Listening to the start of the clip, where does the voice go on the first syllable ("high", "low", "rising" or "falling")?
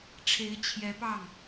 rising